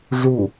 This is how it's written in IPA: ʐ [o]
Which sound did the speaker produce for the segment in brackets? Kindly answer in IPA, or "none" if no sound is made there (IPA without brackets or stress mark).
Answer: u